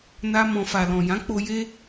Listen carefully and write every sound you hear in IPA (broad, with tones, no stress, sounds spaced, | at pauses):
n a˦ m ɔ̃˧ f a˨ l ɔ̃˨ j ã˨˦ k͡p o˧ j e˦